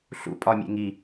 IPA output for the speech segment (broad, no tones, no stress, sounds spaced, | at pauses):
ɬ ṵ pʼ ɒ mʲ ḛ ŋ i